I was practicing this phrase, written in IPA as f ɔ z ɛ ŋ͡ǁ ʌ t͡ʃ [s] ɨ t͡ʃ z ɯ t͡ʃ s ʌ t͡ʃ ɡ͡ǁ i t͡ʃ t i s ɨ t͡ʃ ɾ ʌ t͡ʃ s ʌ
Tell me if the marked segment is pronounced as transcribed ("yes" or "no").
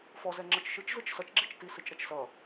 no